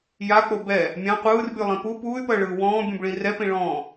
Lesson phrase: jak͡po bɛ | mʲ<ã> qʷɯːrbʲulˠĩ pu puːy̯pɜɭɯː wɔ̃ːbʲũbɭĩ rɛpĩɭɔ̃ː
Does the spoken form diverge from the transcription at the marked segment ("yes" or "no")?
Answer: no